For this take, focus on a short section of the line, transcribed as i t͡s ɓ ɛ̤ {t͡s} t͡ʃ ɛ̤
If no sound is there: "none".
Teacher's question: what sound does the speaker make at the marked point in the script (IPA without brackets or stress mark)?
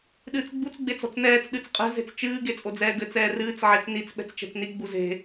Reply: t͡s